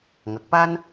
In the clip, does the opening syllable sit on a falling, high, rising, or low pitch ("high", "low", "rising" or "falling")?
low